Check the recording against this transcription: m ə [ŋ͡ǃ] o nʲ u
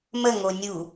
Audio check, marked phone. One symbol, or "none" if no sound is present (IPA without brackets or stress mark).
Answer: ŋ